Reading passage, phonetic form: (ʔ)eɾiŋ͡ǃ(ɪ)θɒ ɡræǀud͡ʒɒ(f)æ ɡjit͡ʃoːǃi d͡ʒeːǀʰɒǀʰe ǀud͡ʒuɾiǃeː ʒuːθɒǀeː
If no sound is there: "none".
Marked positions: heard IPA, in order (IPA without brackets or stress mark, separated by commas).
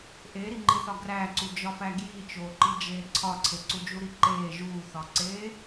ʔ, i, f